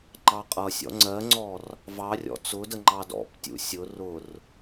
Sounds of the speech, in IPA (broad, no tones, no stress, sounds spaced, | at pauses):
ŋ͡ǃ ɑ qʼ ʌ sʲ ɔ̰ ŋ͡ǀ ɜ ŋ͡ǀ ɔ r | v ɑ rʲ ɔ̰ t͡s ʊ d ə ŋ͡ǃ ɑ d ɔ̰ p tʲ ṵ sʲ ʊ r ʊ r